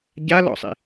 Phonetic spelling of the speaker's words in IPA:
ɟ a l ɔ̰ sˤ ḭ

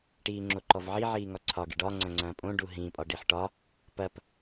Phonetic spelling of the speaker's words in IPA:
ʈ iː ŋ͡ǁ o ǃ ɔ v ʕ i ʕ iː ŋ ɒ ǀʰ ɒ ɡ ḭ ɖ ɒ ŋ͡ǀ ɐ̃ ŋ͡ǀ ɐ̃ː pʼ õ ɖ u ɦ ĩ pʼ ɒ ɖ i ħ ʈ ɒ | p ɐ p

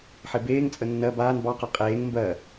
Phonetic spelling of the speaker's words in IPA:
ħ e b eː ŋ t͡sʼ ə nː ɜ b aː n b ɑ q ɜ qʼ eː ŋ m b ɜ

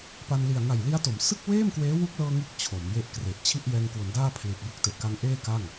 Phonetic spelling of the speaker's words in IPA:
p a˧ n l i˨˩ a̯ ŋ a˨˩ j l i˦˥ a̯ t o˩˦ m s ɯ˥˩ k̚ w eː˥˩ m k w eː˦˥ w u˦˥ k̚ l ɤː˧ ŋ ɯ˥˩ k̚ t͡ɕʰ o˩˦ m j e˥˩ ʔ k r e˨˩ ʔ t͡ɕʰ i˥˩ ʔ j ɛː˧ ŋ k w o˩˦ n d aː˥˩ pʰ l i˨˩ t̚ b u˦˥ k̚ t e˨˩ ʔ k a˦˥ ŋ ʔ eː˥˩ k a˥˩ ŋ

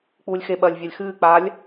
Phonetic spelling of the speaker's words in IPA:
k͡p uː lʲ x e ɓ ɐː lʲ vʲ a lʲ x ɨː k͡p aː lʲ

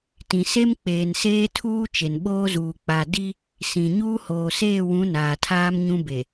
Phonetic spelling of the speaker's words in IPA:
t ĩ˨ s e˦ m k͡p eː˨ n s eː˦ tʰ uː˦ t͡ʃ e˨ n ɓ oː˦ z uː˨ k͡p a˨ d i˦ | s ĩ˨ ɲ uː˦ h oː˨ s eː˦˨ w ũ˨˦ n aː˨ tʰ aː˦ m ɲ ũ˦ b e˨

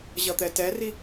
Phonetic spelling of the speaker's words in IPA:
ʑ ʌ t̪ ɛ t ɛ r i

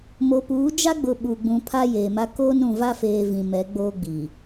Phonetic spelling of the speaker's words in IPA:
m o˨ p uː˨˦ d͡ʒ a˦ ɡ͡b ʊ˨ ɓ u˨ ɡ͡b ũ˨ pʰ a˦ j eː˨ m a˦ k oː˦ n ũ˨ v a˦ f eː˨ v ĩ˨ m ɛ˨˦ ɡ͡b oː˦ ɡ͡b i˨

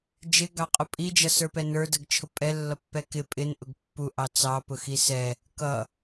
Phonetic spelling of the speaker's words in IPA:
d͡ʒ ɪ ɡ ɑ qʼ ʊ pʼ i d͡ʒ ʌ s ə˞ p ɛ n ə˞ d ə ɡ t͡ʃʰ ʊ pʼ ɛ lː ʌ pː ɛ k ɪ pʼ ɪ n ʔ ʊ ɡ pː u ʔ ɑ t͡s ɑ p ʊ x i s ɛ | k ʌ

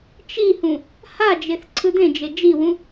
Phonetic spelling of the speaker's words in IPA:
t͡ʃ i h ũ | h a d͡ʒ e θ ǀʰ ɯ d̪ ẽ d͡ʒ e d͡ʒ i w ũ

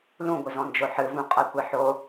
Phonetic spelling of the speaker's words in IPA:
l ũ ɡʷ ɨ z ɔ̃ n d͡ʒ o ħ ɨ v ũ qʼ a kʷ e ħ o

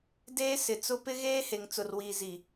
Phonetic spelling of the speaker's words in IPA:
d eː˦ s ɪ˨ t͡s ʊ˦ p ɪ˦ ɣ eː˦ h e˨ ŋ t͡s ʊ˨ r w iː˨ z i˨

